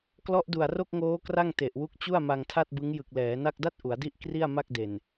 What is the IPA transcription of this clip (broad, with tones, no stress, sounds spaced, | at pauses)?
k l ɔ˦˥ ʔ d u˨˩ a̯ r o˥˩ k̚ ŋ oː˦˥ k r a˥˩ ŋ t e˨˩ ʔ w u˦˥ k̚ t͡ɕ u˥˩ a̯ m a˧ ŋ tʰ a˥˩ t̚ b ɯ˦˥ ŋ j ɯ˨˩ k̚ l ɛː˩˦ n a˥˩ k̚ d a˦˥ t̚ ʔ u˩˦ a̯ d i˥˩ ʔ k r i˥˩ a̯ m a˥˩ k̚ d e˨˩ n